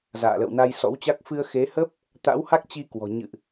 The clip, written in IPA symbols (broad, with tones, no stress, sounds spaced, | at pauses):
z a̰ː˧˨ l ə̰˧˨ w n a˧ j s ɔ̰˧˥ w t͡ɕ a˦˥ k̚ f ɨ˧ ə̯ x e˨˦ h ə˦˥ p̚ | t̪ a̰˧˥ w h a˦˥ k̚ t͡ɕ i˧ k w ɔ̤˨˩ ɲ ɨ̰˧˨ ʔ